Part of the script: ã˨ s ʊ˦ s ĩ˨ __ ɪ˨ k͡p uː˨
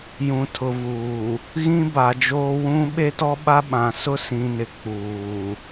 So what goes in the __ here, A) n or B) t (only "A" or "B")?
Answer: A